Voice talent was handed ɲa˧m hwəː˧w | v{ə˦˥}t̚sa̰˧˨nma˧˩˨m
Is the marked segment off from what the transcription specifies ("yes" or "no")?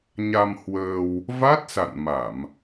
yes